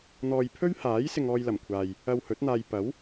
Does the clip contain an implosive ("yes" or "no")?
no